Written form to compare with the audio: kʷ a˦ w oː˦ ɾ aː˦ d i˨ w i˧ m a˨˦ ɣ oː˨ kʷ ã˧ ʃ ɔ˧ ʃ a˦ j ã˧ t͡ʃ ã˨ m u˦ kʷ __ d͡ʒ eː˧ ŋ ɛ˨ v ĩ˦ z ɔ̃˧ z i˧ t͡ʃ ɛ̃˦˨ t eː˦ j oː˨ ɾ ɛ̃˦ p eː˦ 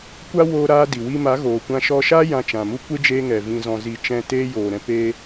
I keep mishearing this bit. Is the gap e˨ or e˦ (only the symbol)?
e˦